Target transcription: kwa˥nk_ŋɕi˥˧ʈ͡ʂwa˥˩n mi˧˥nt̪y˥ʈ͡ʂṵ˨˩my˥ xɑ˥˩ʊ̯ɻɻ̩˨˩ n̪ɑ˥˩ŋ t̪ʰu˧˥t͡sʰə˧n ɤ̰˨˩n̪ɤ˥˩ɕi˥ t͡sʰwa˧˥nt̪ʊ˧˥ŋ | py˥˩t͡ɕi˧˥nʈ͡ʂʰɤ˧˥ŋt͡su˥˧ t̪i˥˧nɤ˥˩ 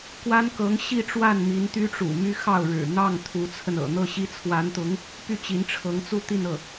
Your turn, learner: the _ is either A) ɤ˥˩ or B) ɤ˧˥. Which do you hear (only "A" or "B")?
B